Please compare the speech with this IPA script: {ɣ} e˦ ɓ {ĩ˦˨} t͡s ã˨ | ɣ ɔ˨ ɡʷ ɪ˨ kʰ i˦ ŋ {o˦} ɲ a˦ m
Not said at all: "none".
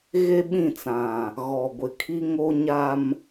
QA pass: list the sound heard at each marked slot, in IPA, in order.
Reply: ɣ, ĩ˦˨, o˦

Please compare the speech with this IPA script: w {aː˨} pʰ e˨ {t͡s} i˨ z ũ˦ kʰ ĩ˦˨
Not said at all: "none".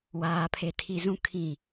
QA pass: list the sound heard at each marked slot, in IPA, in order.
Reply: aː˨, tʰ

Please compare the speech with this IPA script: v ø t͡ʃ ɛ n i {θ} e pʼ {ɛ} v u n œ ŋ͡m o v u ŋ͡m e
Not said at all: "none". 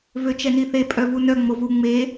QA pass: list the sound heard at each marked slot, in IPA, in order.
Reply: θ, œ

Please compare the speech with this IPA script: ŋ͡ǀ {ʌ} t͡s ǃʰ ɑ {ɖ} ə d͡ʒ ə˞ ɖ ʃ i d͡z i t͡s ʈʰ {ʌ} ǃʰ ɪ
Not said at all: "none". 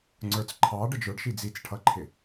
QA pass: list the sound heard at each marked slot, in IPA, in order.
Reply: ə˞, ɖ, ʌ

